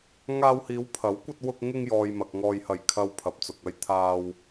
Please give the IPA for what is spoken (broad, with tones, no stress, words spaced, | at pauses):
ŋaː˧whiː˨˧wpʰɐ˨˥w kʷɐ˧t̚wʊ˧k̚ ŋɪ˧ŋjɔː˨jmɐ˨k̚ŋɔː˨j hɐ˨˩j kʰɐ˨w pʰɐ˨p̚t͡sʊ˨k̚ɐ˧jt̪ʰaː˧w